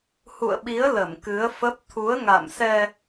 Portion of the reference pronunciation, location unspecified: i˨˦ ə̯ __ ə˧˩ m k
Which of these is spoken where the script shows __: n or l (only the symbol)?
l